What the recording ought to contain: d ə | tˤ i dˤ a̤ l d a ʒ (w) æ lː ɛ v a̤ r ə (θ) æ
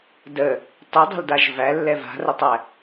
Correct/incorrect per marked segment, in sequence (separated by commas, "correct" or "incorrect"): incorrect, incorrect